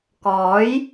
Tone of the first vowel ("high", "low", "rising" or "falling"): rising